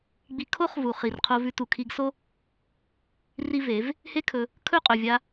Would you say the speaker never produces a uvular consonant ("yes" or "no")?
no